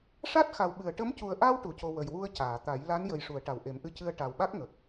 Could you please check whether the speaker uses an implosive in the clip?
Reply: yes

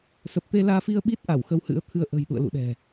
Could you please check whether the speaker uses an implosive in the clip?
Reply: yes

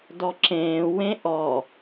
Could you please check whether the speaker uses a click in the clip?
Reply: yes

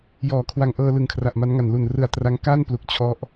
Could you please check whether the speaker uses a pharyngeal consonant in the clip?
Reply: no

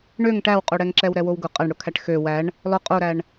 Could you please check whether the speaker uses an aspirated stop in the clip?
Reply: yes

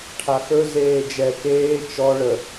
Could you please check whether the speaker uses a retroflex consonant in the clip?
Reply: yes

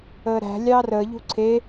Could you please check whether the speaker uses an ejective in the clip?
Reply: no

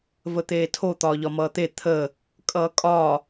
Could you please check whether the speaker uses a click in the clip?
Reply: no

